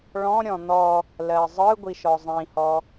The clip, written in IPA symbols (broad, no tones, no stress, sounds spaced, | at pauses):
ɭ ɔ̃ ɾʲ ɔ̃ n̪ ɔ | l ɜ zˤ ɯ ɡʷ i ʃ ɔ zˤ ĩ h ɔ